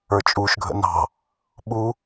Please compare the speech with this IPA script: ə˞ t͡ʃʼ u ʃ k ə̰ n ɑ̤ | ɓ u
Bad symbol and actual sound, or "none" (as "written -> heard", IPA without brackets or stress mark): k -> ɡʱ